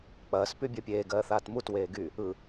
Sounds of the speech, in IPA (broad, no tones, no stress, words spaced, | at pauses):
k͡pɐːs pybʲɜpʲeː ɡɜːθaːtmut weːɡy | ɯ